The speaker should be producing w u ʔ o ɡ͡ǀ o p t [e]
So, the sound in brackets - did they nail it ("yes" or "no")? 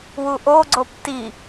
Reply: no